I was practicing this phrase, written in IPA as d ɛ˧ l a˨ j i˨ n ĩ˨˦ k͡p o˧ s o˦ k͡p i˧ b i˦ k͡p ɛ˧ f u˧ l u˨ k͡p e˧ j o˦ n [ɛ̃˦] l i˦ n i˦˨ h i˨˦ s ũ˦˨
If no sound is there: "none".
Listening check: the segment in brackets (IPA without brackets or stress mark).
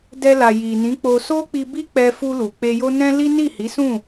ɛ̃˦